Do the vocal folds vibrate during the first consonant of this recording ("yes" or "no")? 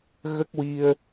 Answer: yes